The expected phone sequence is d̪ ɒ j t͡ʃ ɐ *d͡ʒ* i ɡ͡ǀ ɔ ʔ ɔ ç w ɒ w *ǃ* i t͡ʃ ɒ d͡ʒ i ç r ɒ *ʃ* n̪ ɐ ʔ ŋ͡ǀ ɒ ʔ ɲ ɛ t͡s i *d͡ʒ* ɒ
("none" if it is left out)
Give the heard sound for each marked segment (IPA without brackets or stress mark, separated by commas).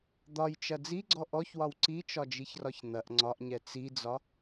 d͡z, ǀ, ç, d͡z